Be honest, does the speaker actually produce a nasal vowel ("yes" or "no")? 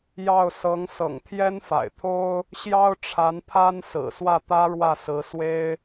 no